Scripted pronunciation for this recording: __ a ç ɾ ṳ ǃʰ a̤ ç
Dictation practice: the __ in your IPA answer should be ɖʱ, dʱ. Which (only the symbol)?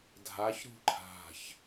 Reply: dʱ